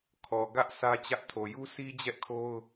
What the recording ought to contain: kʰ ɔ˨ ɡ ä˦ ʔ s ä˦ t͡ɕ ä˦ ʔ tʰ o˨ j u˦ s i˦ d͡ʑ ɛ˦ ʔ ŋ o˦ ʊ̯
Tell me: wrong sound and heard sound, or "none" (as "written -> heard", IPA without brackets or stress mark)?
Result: ŋ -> kʰ